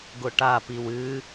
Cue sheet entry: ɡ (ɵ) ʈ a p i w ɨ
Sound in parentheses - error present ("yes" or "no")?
yes